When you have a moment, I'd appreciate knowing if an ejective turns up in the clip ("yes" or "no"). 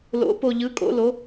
yes